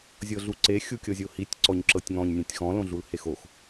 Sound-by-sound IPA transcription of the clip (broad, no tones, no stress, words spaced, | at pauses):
zʲɤɮuǀe xʲukʲɤzʲohitʲ ǀɔɲǁɤtʲŋɔ̃ɲ nʲẽtʲxɔ̃ lõɮulhexox